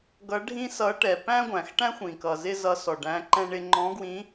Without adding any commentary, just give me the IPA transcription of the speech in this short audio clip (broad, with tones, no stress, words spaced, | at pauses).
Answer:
ɡʌ˧˥ɖʱĩ˥sʌ˧˥ʈɛ˩ pæ̃˥ɡʷæ̃˩xʈæ̃˥xʷ ĩ˩kʌ˩zɪ˥ zʌ˧˥sɔ˩ɖæ̃˧˥ ǃɛ̃˥ɳɪ˥ ŋ͡ǃɔ̃˧˥ɡwĩ˧˥